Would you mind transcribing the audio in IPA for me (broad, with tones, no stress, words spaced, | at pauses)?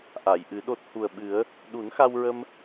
ʔa˨˩˨jʔɨ˨˩˦ɗo˦˥t̚ hu˨˩ə̯ɓɨ˨˩˦ə̯ | ɗu˨˩˦nxa˧wɹə˧m